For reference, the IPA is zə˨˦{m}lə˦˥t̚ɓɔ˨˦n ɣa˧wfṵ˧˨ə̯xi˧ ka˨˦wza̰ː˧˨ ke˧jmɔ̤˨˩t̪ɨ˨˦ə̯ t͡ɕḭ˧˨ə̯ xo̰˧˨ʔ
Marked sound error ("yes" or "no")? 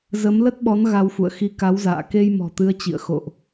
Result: no